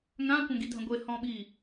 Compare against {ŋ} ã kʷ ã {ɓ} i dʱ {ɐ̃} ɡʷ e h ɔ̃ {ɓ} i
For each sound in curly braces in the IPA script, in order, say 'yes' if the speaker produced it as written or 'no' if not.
yes, no, yes, yes

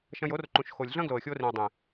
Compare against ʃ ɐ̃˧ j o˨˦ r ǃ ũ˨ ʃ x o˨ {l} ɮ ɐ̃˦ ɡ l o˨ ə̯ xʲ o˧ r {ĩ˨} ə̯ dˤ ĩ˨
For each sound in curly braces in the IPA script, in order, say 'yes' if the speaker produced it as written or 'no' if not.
no, yes

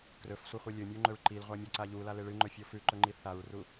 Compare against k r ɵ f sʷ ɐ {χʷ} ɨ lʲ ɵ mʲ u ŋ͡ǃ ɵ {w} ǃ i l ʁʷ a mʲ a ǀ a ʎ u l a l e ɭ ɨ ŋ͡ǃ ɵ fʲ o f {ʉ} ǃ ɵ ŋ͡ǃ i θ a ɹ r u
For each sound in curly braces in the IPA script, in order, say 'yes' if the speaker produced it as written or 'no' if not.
yes, no, yes

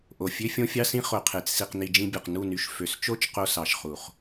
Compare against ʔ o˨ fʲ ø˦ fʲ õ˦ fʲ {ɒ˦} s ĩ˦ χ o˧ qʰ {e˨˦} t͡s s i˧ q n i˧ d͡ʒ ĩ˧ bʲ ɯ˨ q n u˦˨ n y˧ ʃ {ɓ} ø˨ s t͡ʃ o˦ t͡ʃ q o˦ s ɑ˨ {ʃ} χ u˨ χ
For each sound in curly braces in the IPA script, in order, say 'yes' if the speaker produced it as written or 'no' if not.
no, yes, no, yes

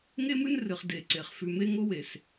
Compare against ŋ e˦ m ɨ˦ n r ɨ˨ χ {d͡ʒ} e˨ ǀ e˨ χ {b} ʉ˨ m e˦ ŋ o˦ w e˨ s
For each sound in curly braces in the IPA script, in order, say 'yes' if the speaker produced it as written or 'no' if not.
no, no

